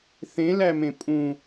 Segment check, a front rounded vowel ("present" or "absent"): absent